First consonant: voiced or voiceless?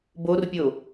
voiced